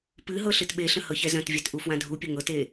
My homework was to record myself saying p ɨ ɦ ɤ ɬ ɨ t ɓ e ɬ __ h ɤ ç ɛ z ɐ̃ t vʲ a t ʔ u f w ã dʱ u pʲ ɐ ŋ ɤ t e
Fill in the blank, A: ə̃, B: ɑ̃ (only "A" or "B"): A